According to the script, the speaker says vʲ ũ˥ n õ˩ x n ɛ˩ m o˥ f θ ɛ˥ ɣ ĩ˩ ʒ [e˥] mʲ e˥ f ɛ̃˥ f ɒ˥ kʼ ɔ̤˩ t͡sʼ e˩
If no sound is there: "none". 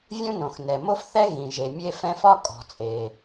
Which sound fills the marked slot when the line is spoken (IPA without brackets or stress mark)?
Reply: e˩